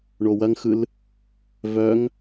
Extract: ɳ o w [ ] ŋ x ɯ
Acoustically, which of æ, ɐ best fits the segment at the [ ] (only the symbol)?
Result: ɐ